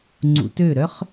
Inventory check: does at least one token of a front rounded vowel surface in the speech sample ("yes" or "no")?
yes